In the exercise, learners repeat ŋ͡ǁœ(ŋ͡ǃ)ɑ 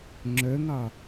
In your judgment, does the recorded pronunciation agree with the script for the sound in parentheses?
no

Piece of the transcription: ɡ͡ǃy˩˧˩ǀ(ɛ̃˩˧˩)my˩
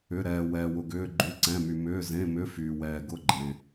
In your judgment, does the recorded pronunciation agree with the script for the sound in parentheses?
yes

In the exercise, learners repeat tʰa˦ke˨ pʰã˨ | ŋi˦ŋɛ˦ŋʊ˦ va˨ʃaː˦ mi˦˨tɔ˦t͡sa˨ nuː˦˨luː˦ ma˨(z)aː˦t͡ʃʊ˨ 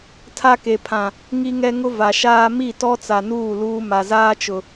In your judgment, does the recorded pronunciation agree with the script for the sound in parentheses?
yes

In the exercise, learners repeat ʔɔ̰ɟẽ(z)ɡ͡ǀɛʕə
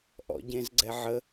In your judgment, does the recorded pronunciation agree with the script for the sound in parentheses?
yes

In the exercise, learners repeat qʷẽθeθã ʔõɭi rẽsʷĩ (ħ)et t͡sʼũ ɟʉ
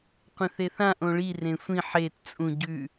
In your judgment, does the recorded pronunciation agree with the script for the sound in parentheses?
yes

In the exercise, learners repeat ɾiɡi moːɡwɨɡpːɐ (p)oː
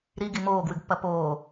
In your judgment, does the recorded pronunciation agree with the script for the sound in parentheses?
yes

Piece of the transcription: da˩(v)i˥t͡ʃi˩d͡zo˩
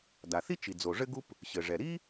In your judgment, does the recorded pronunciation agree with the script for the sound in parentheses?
no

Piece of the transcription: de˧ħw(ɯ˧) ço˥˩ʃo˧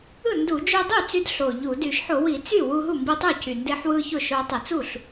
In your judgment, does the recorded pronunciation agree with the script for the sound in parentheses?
yes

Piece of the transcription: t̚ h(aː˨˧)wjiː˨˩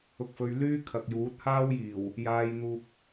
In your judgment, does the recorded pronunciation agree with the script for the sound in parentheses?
no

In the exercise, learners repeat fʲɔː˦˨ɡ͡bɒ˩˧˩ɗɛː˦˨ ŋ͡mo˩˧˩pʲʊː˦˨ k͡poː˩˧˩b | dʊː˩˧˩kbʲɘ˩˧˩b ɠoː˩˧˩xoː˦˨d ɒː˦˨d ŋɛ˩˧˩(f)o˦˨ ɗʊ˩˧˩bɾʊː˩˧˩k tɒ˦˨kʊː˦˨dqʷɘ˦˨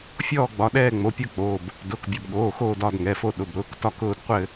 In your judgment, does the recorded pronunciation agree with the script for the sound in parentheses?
yes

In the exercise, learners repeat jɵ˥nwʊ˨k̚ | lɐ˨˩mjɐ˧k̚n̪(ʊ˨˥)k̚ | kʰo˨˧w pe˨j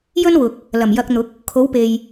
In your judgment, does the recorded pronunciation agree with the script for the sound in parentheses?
yes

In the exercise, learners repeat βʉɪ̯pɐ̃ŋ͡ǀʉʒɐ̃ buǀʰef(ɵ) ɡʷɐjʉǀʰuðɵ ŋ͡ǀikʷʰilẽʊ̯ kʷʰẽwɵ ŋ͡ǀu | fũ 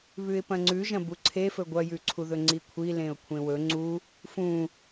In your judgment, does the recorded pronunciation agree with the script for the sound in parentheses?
yes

